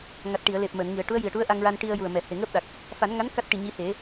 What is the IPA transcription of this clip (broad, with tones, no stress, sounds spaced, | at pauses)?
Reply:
ŋ a˨˩ t̚ ʈ i˨˩˨ ə̯ l e˨˩ p̚ m əː˨˩˨ n ŋ i˨˩˨ ə̯ ʈ u˧˥ ə̯ j i˨˩ ə̯ ʈ u˧˥ ə̯ ʔ a˧ ŋ ɹ a˧ n ʈ i˧ ə̯ j u˨˩ ə̯ m ɛ˨˩˨ h e˨˩ ŋ əː˦˥ p̚ ɗ a˨˩ k̚ | f a˨˩˦ n ŋ a˧˥ n k a˦˥ t̚ ʈ i˨˩ ɲ i˧˥ h e˨˩˦